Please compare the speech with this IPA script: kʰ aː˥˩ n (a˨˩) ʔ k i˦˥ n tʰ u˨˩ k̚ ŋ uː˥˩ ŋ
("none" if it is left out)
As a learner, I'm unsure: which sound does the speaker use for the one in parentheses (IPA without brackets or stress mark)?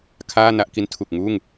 a˥˩